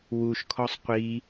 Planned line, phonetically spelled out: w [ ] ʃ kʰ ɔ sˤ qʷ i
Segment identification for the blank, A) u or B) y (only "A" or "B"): A